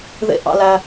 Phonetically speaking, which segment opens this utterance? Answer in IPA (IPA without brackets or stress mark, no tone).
ð